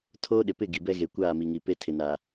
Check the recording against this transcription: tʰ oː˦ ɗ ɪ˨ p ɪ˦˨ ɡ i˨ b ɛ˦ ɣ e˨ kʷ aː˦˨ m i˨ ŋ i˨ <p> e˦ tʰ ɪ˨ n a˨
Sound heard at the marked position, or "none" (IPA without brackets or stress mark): p